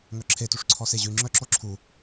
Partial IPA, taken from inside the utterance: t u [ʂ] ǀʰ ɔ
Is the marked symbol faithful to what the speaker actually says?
yes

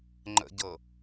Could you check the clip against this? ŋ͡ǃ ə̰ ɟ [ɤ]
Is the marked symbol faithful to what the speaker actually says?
yes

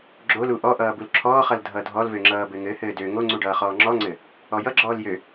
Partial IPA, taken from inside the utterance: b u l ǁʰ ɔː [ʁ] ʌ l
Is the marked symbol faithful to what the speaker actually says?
no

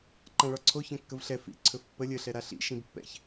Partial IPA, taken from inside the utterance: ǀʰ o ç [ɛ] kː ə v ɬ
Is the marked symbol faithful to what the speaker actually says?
no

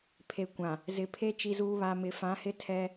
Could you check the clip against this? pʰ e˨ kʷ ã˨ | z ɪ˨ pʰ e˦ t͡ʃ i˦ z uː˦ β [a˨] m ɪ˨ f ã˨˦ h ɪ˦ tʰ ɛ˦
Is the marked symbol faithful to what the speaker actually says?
yes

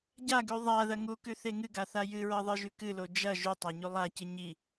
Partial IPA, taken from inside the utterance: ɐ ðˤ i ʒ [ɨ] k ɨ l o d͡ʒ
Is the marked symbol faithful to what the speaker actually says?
no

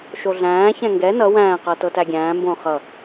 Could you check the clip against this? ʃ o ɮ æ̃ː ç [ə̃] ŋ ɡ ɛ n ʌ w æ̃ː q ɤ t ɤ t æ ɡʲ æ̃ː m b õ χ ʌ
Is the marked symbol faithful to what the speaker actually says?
no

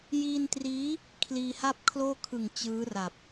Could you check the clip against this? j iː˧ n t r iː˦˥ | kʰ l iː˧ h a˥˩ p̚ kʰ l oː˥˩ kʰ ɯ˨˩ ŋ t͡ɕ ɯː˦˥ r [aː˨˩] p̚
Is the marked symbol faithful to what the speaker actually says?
no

